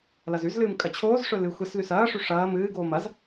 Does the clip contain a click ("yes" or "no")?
no